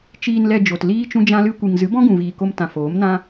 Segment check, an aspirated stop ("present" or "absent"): absent